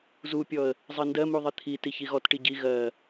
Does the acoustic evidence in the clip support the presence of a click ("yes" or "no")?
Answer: no